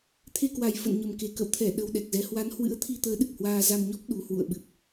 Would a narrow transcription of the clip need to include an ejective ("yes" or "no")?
no